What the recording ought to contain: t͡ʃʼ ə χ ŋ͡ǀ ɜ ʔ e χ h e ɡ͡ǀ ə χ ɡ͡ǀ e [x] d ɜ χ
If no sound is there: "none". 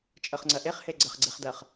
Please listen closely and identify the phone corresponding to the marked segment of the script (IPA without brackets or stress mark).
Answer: χ